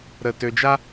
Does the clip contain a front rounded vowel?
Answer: yes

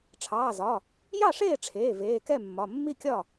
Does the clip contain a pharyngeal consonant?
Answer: no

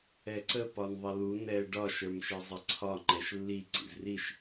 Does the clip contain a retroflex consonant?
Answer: yes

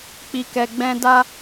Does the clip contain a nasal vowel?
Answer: yes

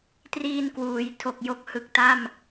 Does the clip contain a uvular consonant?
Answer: no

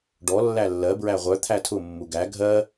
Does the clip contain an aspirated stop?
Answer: yes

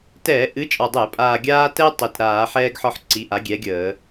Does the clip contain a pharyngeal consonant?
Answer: yes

